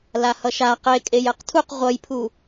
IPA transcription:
lahʌʃa qekʼej ɛqtʰuq ʁʷʌjpʰu

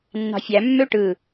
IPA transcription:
nːɑ̤fʲæ mːøʈɯ

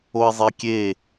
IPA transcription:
oɪ̯zˤekʲe

